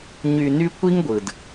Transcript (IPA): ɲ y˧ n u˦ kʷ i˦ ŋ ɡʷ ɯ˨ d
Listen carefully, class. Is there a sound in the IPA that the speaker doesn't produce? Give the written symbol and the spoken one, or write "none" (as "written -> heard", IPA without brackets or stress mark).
u˦ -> y˦